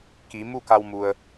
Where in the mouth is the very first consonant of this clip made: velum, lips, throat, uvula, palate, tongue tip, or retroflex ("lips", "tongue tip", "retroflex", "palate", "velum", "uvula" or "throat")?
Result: velum